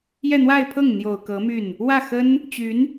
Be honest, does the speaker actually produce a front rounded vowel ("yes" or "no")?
yes